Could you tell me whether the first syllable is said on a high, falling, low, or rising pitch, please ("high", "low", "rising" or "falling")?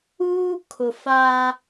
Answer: high